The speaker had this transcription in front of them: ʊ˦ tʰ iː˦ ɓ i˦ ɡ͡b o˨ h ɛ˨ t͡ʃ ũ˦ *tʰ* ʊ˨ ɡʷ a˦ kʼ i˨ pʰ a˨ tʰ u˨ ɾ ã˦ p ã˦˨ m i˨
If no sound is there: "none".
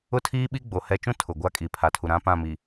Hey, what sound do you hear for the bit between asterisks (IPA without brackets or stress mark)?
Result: tʰ